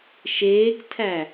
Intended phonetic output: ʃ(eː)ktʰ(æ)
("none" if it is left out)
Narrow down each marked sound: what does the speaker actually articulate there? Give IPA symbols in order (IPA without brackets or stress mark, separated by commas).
eː, æ